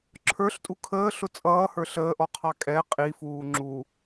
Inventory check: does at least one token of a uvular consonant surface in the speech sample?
yes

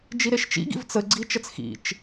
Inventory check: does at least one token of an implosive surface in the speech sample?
no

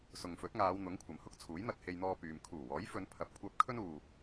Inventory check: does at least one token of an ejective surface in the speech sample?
no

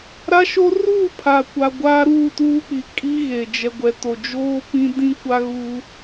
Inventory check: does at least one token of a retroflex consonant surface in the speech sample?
no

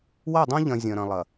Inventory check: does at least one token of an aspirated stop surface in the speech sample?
no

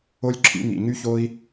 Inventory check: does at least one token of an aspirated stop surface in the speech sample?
yes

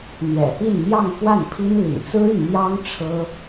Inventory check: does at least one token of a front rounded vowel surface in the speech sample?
yes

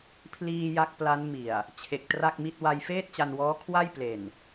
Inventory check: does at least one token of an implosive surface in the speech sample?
no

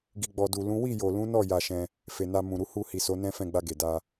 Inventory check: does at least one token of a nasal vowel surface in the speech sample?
yes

